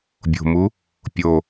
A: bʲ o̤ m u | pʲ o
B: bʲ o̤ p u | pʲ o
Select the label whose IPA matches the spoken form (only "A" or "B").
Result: A